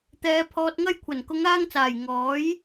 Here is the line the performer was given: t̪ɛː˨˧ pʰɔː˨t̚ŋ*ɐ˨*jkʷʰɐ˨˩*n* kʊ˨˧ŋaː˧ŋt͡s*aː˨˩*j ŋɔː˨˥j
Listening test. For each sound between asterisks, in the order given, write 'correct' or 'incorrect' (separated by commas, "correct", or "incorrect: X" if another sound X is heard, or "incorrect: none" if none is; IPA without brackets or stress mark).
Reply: incorrect: ɐ˧, correct, correct